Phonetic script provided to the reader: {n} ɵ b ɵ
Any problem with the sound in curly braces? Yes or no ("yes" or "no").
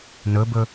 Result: no